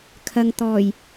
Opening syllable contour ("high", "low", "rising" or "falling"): low